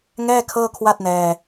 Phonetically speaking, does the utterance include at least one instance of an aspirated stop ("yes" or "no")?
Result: yes